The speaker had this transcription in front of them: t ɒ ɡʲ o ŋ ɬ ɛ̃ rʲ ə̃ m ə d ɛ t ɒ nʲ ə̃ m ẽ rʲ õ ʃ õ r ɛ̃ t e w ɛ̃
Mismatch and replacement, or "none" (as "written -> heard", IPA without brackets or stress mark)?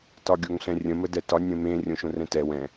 e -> ɛ